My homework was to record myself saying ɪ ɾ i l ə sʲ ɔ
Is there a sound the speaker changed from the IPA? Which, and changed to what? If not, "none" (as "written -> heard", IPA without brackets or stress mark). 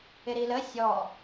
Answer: none